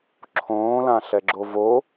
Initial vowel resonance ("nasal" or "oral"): nasal